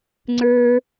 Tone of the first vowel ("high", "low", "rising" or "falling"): low